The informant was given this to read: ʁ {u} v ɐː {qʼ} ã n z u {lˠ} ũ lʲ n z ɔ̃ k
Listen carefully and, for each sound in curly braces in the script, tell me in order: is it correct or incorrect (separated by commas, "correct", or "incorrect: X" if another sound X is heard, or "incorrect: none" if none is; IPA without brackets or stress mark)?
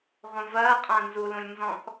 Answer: incorrect: ũ, correct, incorrect: l